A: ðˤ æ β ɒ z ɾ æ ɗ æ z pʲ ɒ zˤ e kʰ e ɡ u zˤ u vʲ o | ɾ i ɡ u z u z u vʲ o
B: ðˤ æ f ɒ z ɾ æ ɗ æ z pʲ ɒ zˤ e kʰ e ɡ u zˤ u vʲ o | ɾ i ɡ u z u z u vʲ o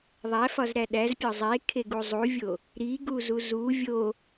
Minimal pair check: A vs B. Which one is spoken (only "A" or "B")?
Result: B